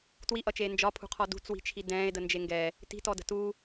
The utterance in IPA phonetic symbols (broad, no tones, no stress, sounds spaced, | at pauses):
t w i ʔ ʌ t͡ʃ eː n d͡ʒ ɒ pʰ ṳ qʰ ɔ d ṳ t͡s w i̤ t͡ʃʰ i d ɛ̃ː e̯ d ə n d͡ʒ e ŋ ɡ ɛ | t i̤ t ɔ d ə̤ t u